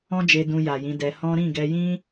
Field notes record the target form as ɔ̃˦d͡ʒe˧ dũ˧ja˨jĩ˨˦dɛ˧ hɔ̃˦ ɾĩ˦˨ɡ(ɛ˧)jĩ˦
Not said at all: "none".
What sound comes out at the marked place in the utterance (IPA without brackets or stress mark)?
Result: ɛ˧